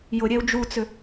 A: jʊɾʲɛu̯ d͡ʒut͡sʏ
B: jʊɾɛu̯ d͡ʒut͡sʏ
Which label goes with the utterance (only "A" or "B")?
A